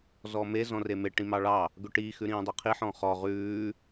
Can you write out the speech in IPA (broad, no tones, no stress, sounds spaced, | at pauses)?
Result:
z ɔ m e z ɔ̃ r e m e ʈ ĩ m ɑ ɭ ɑ | ɡ ɵ ʈ i x ʉ ɾ ĩː dˤ e qʰ i ħ ɔ̃ χ ɔ ʁ ʉː